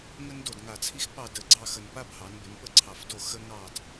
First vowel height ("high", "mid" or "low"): mid